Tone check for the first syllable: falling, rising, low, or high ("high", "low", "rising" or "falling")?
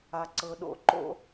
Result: low